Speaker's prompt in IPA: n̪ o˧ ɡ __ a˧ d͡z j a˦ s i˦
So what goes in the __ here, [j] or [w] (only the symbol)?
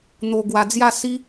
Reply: w